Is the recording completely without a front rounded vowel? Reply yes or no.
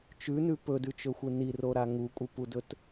yes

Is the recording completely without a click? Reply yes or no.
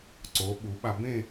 no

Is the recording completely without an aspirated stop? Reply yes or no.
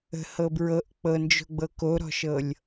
yes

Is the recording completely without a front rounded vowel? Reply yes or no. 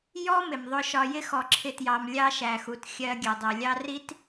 yes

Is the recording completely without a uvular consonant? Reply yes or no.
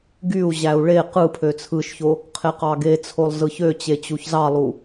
no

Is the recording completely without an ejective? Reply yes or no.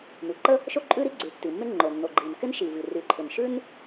no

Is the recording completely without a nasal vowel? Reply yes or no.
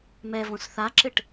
no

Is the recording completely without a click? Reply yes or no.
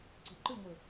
no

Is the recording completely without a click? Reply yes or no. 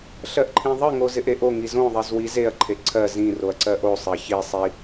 no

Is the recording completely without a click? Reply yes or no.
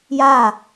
yes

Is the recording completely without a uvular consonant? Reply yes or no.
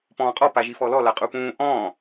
no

